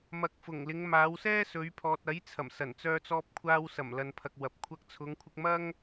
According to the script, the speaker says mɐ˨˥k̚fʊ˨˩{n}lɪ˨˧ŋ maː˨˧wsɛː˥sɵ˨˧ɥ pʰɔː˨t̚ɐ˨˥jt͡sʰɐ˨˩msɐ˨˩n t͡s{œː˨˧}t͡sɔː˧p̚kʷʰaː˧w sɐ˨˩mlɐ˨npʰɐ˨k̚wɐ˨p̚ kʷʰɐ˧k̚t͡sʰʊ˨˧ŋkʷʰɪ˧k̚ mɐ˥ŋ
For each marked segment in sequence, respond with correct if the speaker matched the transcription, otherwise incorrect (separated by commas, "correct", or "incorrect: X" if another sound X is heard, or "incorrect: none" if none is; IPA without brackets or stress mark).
incorrect: ŋ, incorrect: œː˧